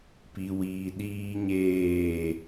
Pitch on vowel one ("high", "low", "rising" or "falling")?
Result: low